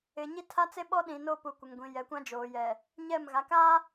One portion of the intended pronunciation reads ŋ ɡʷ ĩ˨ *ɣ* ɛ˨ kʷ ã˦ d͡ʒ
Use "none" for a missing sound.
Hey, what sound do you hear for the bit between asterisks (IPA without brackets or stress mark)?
j